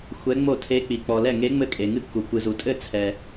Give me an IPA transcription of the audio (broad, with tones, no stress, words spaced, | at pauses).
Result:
xʷɛ˧˥ŋ͡mo˥˩ tʰe˧˥k͡pi˩k͡pɔ˩lɛ˥˩ ŋe˧˥ ŋ͡mɘ˥˩kʼe˩ŋɨ˥˩ kːu˩ kʷɨ˩zu˩tʼɘ˥˩ t͡sʰɛ˩